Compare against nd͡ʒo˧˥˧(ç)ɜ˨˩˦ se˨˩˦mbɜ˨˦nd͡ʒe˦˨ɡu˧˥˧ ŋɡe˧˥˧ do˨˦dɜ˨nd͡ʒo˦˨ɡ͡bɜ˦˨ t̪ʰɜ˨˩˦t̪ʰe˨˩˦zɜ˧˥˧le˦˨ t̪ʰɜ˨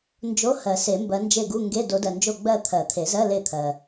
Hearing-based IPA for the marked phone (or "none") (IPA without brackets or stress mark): h